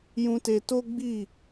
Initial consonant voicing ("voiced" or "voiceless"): voiced